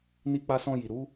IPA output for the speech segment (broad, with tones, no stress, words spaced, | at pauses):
ni˧k͡pa˧sɔ̃˧ji˨ ɾu˨˦